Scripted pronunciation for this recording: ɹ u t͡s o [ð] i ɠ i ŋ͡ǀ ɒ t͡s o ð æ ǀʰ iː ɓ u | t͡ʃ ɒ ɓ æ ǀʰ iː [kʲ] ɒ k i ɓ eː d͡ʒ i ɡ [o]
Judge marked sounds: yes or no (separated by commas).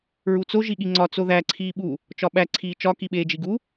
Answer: no, no, no